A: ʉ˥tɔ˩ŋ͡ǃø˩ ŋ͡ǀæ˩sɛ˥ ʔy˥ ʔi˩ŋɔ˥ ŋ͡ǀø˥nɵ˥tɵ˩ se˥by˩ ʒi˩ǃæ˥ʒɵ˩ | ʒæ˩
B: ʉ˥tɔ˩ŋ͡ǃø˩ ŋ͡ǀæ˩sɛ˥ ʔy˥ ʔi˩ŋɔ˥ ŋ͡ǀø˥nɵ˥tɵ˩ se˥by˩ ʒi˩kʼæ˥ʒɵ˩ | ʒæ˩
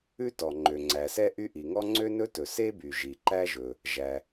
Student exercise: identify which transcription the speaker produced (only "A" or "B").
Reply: A